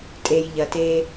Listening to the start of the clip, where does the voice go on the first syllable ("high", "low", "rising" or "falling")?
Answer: low